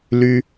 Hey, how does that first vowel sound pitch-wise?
high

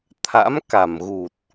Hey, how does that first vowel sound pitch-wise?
rising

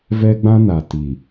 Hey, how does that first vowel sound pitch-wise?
high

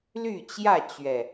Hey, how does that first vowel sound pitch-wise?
falling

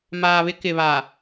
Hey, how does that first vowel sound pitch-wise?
low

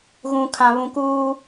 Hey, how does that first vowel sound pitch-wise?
low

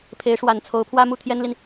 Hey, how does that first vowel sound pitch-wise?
rising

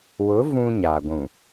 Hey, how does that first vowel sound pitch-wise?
rising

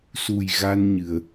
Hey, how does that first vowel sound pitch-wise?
low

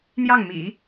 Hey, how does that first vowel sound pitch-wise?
falling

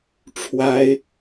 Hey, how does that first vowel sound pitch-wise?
rising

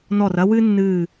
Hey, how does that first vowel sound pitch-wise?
falling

